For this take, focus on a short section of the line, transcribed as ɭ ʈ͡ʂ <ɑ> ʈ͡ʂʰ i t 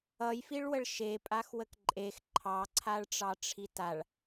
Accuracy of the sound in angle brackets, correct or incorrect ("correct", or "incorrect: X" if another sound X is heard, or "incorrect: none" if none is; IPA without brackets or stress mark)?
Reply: correct